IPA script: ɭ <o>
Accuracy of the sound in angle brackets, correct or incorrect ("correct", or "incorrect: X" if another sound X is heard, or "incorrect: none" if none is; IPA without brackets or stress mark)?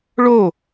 correct